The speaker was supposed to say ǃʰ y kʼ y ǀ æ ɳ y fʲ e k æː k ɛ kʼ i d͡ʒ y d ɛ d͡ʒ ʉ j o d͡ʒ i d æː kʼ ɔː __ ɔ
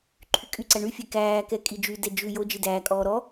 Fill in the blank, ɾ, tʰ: ɾ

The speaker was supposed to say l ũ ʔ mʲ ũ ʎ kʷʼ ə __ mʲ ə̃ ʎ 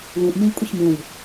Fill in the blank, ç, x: ç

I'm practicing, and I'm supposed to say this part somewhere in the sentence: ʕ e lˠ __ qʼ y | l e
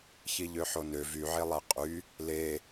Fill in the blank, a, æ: æ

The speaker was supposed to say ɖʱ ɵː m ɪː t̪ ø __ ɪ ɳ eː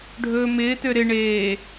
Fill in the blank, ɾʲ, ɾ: ɾ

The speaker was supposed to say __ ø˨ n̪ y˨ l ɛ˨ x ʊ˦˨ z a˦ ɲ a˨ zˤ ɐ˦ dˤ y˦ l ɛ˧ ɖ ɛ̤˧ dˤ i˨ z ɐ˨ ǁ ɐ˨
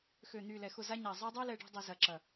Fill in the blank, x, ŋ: x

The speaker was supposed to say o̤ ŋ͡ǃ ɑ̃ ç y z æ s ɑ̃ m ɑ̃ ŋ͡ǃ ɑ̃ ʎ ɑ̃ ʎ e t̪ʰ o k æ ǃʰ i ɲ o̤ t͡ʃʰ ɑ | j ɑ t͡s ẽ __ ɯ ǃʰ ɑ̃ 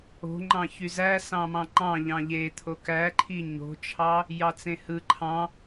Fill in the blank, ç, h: h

